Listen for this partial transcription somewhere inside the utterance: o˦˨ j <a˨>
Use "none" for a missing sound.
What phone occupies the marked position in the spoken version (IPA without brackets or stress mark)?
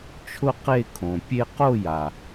a˨